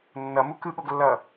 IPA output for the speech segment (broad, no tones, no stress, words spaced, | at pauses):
nːʌmu kɯɠoɡlːʌː